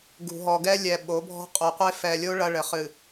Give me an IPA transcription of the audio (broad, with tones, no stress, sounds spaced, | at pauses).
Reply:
ɡ ṳ˨ ɦ ɔ˨ ɡ ɛ˦ lʲ ɛ˨ ɓ o˨˦ bʱ ɔ̤˦ qʼ o˨ qʷ e˦ f ɛ˨ lʲ o˦ ɭ ɐ˦ ɭ ɘ˨ χ ɨ˨